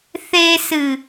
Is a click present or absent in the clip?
absent